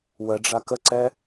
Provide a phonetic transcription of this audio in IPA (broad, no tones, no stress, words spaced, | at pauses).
wəɖ͡ʐa kəǀɛ